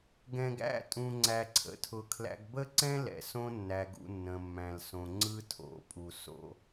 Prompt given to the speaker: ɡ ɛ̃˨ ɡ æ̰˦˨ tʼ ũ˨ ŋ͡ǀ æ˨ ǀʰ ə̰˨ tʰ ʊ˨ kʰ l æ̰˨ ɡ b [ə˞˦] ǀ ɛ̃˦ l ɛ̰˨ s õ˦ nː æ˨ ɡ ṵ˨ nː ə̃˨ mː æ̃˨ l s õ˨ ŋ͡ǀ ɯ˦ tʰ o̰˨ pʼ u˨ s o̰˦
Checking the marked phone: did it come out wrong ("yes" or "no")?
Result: yes